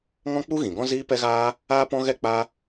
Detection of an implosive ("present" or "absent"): absent